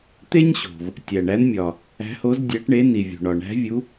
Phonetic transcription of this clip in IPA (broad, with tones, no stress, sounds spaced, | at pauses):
t̪ e˥ ɲ ɕ o̤˩ v | tʲ æ˩ ɳ æ˨˦ n mʲ ɒ˩ | æ̤˨˦ h o˨˦ z dʲ æ˨˦ ʈ ɳ e˨˦ n i˩ vʲ o̤˩ ɳ ɒ˩ ɳ æ̤˨˦ vʲ u˨˦